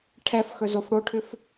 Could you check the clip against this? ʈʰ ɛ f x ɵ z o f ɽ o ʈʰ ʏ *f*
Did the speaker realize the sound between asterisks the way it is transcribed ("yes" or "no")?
yes